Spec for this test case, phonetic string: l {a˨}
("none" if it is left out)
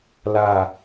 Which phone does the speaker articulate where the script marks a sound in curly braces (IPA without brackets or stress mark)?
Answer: a˦˨